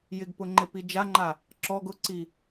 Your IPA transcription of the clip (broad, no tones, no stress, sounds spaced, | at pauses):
j ɪ ɡ p ʊ ŋ͡ǃ e p i d͡ʒ a ŋ͡ǃ a | ǁ ɔ ɡ ʊ ǀ i